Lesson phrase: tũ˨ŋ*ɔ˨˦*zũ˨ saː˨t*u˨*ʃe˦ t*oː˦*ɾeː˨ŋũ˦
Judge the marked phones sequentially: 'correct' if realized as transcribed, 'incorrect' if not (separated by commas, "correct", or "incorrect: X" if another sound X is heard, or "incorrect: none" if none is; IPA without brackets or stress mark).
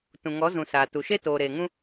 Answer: correct, correct, incorrect: oː˨